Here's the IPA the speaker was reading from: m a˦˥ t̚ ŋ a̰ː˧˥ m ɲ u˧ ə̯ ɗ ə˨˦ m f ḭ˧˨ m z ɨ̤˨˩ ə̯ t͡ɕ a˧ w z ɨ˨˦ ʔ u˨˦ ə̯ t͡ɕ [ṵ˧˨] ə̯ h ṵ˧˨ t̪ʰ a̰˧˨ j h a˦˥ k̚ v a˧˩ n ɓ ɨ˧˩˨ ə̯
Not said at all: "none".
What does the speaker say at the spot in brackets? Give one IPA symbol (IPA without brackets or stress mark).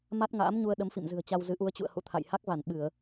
ṵ˧˨